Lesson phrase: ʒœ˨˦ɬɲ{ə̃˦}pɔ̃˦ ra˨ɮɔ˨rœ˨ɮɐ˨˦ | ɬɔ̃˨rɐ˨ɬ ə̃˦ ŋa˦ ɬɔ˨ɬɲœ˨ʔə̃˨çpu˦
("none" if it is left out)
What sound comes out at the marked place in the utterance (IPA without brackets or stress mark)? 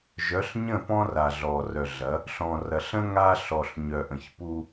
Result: ə̃˦˨